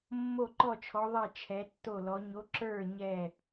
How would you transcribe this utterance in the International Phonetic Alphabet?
mː o˥˩ ǃ ɔ˥˩ t͡ʃʰ ɔ˨˥ ðˤ ɛ˥˩ t͡ʃʰ ɛ˨˥ tː o˥˩ l ɔ˨˥ ɲ o˨˥ ǁ ə˞˥˩ ɲ ɛ˥˩

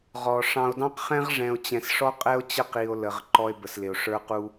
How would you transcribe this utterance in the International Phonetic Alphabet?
ʁ ɔ˨ ʂ ɑ̃˨ o̯ d ɑ̃˦ q χ ɛ̃˦ ʁ ʐ ɛ̃˨ o̯ t͡ɕ ɛ̃˨ s ʂ ɔ˦ qʼ ɛ˦ o̯ t͡ɕ ə˦˨ q i˨ o̯ l ə˨ ʁ ǃ ɔ˦ e̯ b ə˨ s l ɪ˨ o̯ ʂ ə˞˦ q u˦

